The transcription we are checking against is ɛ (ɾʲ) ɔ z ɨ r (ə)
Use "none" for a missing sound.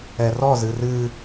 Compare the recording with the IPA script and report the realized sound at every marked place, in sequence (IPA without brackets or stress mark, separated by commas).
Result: r, ɨ